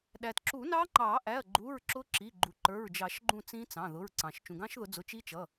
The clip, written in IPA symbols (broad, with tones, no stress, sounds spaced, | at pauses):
ɗ æ˩ t ǁ u˨˩˦ n ɑ˦˥ ŋ͡ǃ ɑ˨˩˦ ʔ æ˩˧˩ ɐ̯ ɡ͡ǃ u˩˧˩ ɹ ǁ ʊ˦˥ ǁ i˩˧˩ ɡ͡ǃ u˩ ǃ ə˞˩˧˩ ɹ d͡ʒ ɑ˨˩˦ ʃ ɡ͡ǃ ũ˦˨ t͡s ĩ˦˥ t͡s ɑ̃˩˧˩ ð ʊ˩˧˩ ɹ ǀ ɑ̃˩ ʃ t͡ʃ ũ˩ ɡ ɑ̃˦˥ ʃ ð ʊ˨˩˦ d͡z ʊ˩˧˩ t͡ʃ i˦˥ t͡ʃ ʌ˩˧˩